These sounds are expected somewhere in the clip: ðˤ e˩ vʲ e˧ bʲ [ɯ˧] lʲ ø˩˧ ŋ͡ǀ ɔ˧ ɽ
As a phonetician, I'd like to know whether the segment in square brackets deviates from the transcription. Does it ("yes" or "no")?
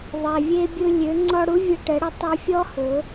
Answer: no